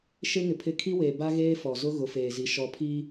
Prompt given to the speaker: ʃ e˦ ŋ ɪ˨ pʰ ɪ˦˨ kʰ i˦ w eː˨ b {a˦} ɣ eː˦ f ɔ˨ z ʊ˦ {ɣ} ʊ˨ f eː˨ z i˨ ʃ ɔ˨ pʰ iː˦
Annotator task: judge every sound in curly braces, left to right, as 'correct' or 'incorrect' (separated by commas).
correct, correct